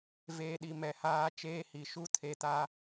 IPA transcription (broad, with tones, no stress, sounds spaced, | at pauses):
v eː˨ ɗ i˨ m ɛ˨ h aː˦ t͡ʃ eː˦ h i˨ ʃ u˦ tʰ e˨ t a˦